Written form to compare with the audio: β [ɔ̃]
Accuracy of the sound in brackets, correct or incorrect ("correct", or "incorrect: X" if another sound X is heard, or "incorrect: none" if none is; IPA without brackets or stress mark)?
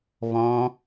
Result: correct